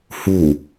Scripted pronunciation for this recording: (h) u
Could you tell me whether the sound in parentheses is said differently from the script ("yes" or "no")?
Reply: no